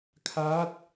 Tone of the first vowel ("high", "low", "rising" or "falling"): rising